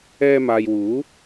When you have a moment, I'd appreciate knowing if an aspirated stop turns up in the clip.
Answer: no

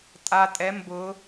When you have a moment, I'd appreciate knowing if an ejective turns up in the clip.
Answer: yes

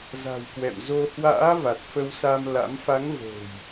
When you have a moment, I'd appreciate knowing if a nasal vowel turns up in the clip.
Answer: no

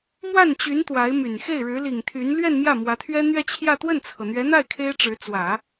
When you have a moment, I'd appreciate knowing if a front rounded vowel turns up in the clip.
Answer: yes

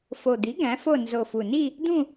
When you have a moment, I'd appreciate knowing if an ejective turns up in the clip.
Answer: no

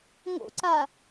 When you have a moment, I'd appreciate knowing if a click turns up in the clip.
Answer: yes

